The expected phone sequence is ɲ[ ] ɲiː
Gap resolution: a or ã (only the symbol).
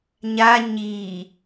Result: a